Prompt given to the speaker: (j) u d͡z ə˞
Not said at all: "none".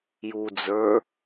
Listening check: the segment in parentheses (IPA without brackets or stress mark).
j